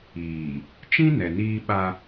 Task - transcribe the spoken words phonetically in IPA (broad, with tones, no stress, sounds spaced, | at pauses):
iː˨ | t͡ʃ ĩ˦ n ɛ˨ n iː˦ ɓ a˦